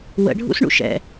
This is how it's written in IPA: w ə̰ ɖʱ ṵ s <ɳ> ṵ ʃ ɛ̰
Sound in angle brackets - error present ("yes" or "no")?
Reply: no